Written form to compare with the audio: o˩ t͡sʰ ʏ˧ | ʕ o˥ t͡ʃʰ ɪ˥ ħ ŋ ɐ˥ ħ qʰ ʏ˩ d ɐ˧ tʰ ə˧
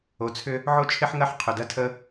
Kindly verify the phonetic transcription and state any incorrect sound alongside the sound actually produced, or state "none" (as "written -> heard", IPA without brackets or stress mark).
none